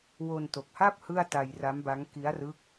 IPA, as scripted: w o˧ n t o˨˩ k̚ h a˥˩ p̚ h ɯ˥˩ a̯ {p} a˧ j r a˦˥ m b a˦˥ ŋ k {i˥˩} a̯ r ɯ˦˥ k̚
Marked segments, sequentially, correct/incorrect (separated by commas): incorrect, incorrect